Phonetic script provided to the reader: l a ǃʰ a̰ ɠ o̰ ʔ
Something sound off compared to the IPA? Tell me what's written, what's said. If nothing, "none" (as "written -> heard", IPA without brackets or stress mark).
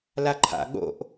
none